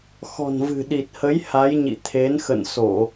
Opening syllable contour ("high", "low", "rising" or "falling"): low